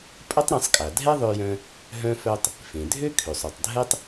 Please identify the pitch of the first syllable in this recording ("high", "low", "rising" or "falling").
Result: high